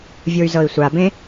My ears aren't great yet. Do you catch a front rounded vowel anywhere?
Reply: yes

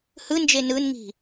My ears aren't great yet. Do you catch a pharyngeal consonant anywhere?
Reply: no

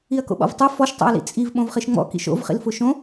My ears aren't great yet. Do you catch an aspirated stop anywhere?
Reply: no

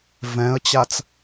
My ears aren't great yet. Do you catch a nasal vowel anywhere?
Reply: yes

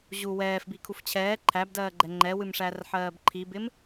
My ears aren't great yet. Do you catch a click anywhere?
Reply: yes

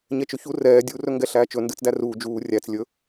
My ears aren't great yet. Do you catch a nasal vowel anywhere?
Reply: no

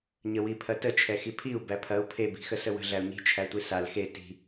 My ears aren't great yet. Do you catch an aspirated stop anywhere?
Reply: yes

